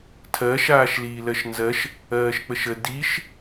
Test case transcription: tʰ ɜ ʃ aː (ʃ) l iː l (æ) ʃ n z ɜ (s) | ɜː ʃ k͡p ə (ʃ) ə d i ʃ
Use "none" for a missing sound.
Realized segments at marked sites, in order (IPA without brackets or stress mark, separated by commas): ʃ, ɜ, ʃ, ʃ